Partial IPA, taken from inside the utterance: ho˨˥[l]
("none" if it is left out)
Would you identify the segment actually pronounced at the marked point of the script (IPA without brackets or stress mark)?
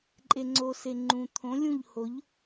ʎ